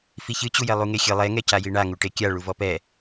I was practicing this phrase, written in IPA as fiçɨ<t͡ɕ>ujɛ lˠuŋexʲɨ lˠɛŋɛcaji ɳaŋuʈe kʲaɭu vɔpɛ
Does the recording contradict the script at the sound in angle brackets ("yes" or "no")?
no